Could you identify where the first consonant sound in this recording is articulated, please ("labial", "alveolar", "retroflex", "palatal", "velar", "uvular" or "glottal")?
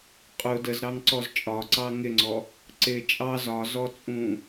uvular